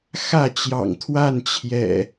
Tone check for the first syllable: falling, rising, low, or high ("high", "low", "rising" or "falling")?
falling